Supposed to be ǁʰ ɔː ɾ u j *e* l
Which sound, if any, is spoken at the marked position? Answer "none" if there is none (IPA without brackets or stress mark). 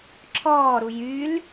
y